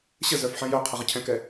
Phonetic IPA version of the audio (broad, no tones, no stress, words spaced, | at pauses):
ɕə zœfħɛ̃jœqʰə ʁəcʰɛ̃kɛ